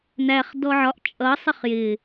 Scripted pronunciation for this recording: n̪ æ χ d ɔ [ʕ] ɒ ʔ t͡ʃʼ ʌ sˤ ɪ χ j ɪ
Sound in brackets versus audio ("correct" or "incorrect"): correct